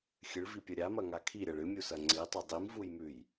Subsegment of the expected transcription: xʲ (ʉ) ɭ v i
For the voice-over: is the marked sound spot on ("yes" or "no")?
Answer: no